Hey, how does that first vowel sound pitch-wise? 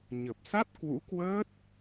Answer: low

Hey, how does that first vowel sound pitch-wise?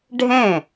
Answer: falling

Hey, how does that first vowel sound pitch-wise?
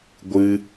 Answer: high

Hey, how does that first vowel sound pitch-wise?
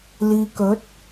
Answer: low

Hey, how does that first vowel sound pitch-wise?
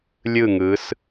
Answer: falling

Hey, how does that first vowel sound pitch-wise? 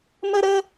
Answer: high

